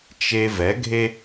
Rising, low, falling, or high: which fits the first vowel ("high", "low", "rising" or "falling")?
high